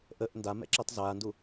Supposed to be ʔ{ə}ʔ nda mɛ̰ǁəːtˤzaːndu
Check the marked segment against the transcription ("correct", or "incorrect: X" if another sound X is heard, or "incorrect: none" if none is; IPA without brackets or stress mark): correct